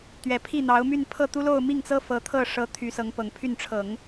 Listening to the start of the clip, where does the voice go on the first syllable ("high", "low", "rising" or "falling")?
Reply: low